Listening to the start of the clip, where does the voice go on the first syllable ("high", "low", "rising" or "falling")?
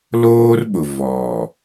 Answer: high